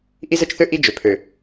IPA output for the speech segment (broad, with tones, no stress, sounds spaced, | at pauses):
ʔ i˦ z ə˦ t͡ʃ θ ø˦ ʔ i˦ d͡ʒ ø˨ pʰ ø˨